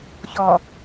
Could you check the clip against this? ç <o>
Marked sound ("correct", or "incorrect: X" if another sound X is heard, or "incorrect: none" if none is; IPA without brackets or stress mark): incorrect: ɔ